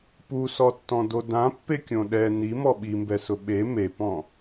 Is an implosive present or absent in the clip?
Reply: present